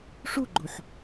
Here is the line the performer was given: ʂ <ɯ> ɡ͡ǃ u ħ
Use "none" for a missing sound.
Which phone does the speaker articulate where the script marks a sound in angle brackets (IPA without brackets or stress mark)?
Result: u